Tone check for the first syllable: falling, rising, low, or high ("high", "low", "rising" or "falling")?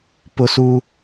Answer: high